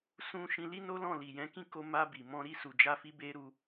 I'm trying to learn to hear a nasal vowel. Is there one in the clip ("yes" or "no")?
yes